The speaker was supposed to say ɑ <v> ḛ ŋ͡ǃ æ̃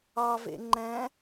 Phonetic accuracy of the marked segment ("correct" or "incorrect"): correct